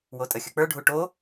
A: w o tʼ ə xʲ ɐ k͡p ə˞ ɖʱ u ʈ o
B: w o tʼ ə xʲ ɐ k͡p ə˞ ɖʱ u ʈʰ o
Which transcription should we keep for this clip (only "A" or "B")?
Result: A